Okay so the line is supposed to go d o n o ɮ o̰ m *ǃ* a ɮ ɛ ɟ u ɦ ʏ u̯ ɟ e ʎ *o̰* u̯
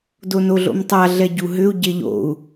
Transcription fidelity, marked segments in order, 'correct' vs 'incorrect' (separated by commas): incorrect, correct